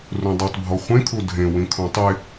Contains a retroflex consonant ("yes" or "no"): no